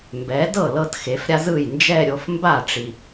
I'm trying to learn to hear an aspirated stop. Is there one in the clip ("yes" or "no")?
no